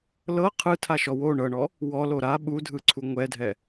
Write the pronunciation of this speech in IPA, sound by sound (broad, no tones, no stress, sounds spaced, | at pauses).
l ɤ qʰ ɯ tʰ a ʃ ɔ w o ɳ ɤ ɳ ɔ | w ɔ l o ɾ a ɓ u dʱ ɯ ǀʰ u ŋʷ ɛ dʱ ɛ